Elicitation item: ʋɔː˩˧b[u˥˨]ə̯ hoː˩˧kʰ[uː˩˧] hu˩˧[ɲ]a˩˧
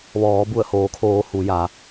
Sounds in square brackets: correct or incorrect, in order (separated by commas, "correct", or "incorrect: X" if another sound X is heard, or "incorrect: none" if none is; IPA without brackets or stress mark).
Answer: incorrect: u˧˩, incorrect: oː˩˧, incorrect: j